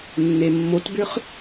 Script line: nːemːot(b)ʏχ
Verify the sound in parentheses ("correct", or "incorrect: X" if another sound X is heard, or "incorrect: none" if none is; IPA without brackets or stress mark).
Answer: correct